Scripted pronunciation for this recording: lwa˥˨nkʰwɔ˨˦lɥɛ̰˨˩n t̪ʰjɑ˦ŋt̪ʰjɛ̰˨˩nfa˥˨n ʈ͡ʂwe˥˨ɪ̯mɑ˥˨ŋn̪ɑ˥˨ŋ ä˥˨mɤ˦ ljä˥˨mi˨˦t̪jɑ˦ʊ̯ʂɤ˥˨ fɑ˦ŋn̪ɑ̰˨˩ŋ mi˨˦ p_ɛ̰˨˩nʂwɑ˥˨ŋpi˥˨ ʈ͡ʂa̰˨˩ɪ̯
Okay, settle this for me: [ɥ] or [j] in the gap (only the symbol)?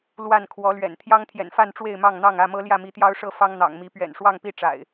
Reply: ɥ